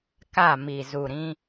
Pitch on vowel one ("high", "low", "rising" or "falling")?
falling